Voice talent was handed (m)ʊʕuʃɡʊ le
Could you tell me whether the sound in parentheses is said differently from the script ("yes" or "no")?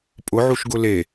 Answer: yes